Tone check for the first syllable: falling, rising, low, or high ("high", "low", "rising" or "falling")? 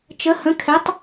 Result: rising